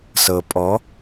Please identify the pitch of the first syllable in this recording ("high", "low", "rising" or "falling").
low